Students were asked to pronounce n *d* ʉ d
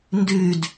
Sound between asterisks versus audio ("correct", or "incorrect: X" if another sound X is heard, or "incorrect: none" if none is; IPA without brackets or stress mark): correct